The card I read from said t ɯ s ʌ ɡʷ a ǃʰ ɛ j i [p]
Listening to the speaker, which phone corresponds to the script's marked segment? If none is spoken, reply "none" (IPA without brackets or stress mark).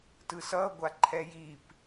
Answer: p